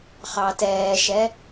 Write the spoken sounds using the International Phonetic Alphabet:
χɑtɛːʃɛ

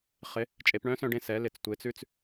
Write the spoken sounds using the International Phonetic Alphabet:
χɪ˩˧ | t͡ʃʼe˩˧pɳœ̃˧˥sœ̃˧ɖẽ˧ sɛ˩˧ lɪ˩˧t͡stʷe˩˧t͡sʉ˧t͡s

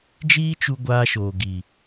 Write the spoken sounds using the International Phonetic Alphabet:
d͡ʒiː˦t͡ʃu˧ ɡʷaː˧ʃoː˨ ɡi˨

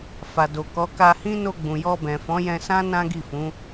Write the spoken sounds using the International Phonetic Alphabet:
fa˨do˨kɔ˨˦ ka˧hĩ˦ no˧ɡ͡bũ˨jɔ˧ bɛ̃˨fɔ̃˨˦jɛ̃˧sã˦ nã˦ɡi˦˨fũ˨˦

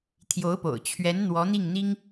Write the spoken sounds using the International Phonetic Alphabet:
t̪ʰjo˧˥ʊ̯po̰˨˩ʊ̯ t͡ɕʰɥɛ˧˥n n̪wɔ˧˥n̪i˥˩ŋn̪i˥ŋ

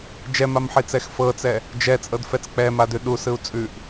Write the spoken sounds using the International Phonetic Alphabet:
d͡ʒɛmamħit͡sɛx fɤt͡sɛ | d͡ʒɛt͡sʼɤdfɛt͡s k͡pɛmadʉ ɗusɯu̯ t͡sʼʉʔ

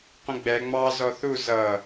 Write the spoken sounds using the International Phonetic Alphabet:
qʷə̃ɡ͡bɛ ŋ͡mɑ zɔθu zʌ

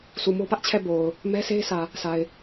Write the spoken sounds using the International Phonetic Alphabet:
sʰu˨mo˦pä˦ʔt͡ɕʰɛ˦˨ bo˨ʊ̯ | mɛ˦sʰe˦ɪ̯ sä˨ | sa˨ɪ̯

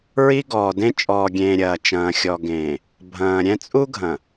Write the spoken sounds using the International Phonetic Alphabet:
ɹi˦ ɡɔː˨dẽ˦ t͡ʃʼɔː˨ɡʲẽː˨ ɾʲɐː˨ t͡ʃɐ̃ː˨xʲɔ˨ɡẽː˨ | bʱɐ̃ː˨ɾʲɛ̃˦ t͡sʼu˦ɡʱɐ̃˨

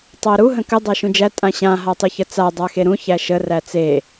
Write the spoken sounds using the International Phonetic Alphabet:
tˤæɾu ɦə̃kə dˤæʃũd͡ʒæ tʼãɕã ɦatˤyçət͡sa dˤaxeɾũ çæʃə ræt͡se

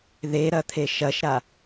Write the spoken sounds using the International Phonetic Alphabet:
ðeɾɐt̪ʰe ʃɐʃɾa

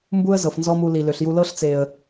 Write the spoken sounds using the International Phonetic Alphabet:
mbu˦ə̯ zɤ˨fnzɔ˦mu˧li˨ lø˨ɬju˧lɤ˦ɬ t͡se˨ə̯

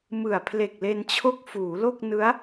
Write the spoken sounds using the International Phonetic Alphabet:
mɯ˨˩a̯pʰle˨˩k̚ le˧nt͡ɕʰo˥˩k̚ fuː˩˦lo˥˩k̚ nɯ˦˥a̯

